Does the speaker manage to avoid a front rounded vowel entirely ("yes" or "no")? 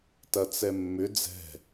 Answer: no